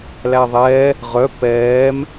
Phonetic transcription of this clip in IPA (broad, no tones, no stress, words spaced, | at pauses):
læðˤɛː | ʁœ pɛːm